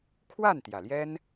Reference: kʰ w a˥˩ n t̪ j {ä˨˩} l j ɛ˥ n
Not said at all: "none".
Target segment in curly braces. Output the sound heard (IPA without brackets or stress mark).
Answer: ä˨˩